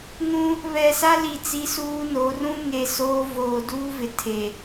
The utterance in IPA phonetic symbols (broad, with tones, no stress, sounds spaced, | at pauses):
ŋ ũ˦ | β ɛ˨ s a˦ l i˨ t͡s i˦ s uː˦ n o˨˦ r ũ˦ ŋ e˨ s oː˦ v oː˨ d uː˦ v ɪ˨ tʰ e˨